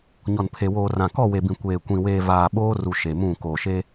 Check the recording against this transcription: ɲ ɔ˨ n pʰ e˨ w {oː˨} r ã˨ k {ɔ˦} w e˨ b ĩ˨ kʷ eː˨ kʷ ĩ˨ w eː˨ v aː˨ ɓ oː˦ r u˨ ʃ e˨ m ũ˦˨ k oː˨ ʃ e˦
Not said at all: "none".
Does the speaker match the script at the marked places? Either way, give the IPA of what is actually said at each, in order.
oː˨, ɔ˦˨

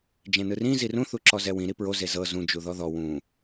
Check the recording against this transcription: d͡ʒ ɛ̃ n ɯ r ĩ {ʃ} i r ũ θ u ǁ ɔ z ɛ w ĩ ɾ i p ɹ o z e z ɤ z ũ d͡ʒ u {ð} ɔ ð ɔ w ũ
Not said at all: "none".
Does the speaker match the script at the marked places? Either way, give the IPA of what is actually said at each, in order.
z, ð

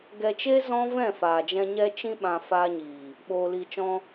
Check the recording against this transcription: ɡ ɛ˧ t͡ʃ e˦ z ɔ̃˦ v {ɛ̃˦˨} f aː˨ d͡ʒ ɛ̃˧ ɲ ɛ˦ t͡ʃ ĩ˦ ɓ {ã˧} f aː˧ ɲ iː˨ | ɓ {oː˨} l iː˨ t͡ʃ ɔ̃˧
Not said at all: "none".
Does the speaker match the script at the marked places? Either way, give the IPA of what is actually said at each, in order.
ɛ̃˦˨, ã˧, oː˨

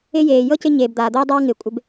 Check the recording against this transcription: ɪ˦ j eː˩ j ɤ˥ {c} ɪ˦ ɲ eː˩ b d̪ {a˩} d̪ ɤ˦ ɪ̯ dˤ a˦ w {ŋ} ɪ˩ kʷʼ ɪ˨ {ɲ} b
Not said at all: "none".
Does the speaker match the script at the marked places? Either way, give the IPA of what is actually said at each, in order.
c, aː˩, ŋ, none

